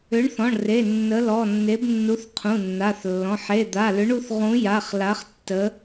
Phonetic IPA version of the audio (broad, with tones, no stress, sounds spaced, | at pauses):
ʏ˨˥ ɳ θ ɔ̃˩˧˩ ɳ r e˩˧˩ nː ə˨˥ l ɔ˩˧˩ nː e˨˥ b nː u˨˥ θ qʰ ũ˩˧˩ nː a˩˧˩ θ lː ɔ̃˩˧˩ ħ e˩˧˩ d̪ a˩˧˩ l ʏ˨˥ ɳ u˨˥ θ ʁ ũ˨˥ j a˩˧˩ χ l a˨˥ χ tː ə˨˥